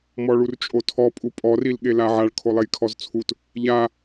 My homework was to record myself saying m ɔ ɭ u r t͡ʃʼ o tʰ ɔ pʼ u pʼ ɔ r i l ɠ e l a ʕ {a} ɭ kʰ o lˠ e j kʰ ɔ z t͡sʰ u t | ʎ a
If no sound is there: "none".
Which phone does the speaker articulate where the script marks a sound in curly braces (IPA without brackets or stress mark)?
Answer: a